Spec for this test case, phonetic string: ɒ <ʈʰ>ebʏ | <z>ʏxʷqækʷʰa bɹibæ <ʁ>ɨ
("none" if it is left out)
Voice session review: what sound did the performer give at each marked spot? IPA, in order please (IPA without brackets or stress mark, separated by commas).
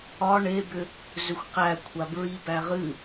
ɳ, z, ʁ